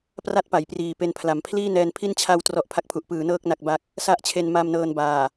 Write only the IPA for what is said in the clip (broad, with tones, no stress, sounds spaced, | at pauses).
p r a˥˩ t̚ p a˩˦ j p r iː˨˩ p e˧ n pʰ l a˨˩ m pʰ l iː˥˩ n ɛː˧ n pʰ i˥˩ n t͡ɕʰ a˧ w t r ɔ˥˩ ʔ pʰ a˦˥ k̚ pʰ u˨˩ ʔ p ɯː˩˦ n ɤː˥˩ k̚ n a˥˩ k̚ b a˥˩ k̚ | s a˥˩ ʔ t͡ɕʰ e˧ n m a˧ m n ɤː˧ n b aː˨˩